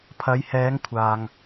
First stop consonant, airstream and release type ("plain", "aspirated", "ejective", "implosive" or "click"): aspirated